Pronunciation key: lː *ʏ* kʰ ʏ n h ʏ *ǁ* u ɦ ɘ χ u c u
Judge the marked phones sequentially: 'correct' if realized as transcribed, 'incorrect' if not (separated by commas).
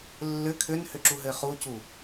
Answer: correct, correct